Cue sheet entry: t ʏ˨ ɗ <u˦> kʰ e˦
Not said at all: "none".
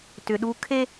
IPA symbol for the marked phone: u˦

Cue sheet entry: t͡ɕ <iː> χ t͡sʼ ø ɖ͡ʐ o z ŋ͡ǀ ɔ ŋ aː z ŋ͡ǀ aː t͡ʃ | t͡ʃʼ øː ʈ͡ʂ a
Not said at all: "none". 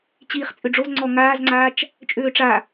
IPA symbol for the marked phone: iː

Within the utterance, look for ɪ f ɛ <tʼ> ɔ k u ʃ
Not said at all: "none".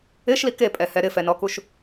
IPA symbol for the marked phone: n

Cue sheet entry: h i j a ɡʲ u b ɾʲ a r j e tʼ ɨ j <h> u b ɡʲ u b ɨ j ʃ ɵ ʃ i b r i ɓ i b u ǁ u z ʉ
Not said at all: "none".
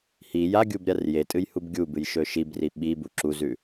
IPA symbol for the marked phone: h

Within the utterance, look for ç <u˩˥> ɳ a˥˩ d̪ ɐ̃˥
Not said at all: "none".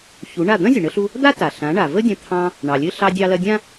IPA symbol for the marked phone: u˩˥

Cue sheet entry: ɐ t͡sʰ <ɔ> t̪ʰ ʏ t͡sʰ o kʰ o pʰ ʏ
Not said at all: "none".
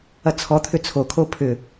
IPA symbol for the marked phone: ɔ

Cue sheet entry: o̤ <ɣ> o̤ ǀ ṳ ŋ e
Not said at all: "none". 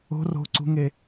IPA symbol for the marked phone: r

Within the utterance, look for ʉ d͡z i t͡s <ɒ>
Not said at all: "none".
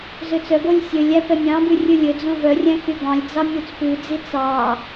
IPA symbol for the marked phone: ɑ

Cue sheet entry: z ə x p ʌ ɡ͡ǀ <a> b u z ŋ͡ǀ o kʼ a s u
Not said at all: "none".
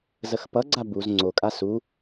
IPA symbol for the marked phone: a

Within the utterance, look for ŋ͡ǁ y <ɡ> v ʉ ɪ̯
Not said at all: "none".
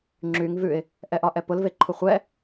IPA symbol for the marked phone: ŋ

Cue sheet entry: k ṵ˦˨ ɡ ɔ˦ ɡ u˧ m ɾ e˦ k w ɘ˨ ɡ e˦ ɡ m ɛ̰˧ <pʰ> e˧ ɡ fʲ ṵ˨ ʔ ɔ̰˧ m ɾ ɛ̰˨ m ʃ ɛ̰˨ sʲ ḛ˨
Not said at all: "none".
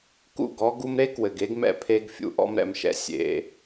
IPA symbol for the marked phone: pʰ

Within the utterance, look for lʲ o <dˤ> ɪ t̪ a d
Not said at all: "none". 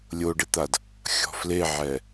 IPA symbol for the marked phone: ɖ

